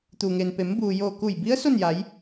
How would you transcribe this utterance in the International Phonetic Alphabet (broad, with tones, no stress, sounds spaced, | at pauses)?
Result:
t̪ u˩ ŋ e˩ n p e˩˧ m b uː˩ j oː˧˩ k u˧˩ j b i˧˥ ə̯ s o˥˨ n j a˩˧ j